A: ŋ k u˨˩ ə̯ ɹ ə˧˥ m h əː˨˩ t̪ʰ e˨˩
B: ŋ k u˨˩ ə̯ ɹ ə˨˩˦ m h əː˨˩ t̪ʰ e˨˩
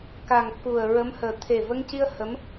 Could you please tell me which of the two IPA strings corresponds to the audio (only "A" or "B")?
A